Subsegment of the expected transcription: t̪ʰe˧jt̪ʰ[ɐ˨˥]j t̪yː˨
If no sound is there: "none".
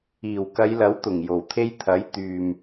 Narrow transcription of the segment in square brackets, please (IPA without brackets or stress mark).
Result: ɐ˨˥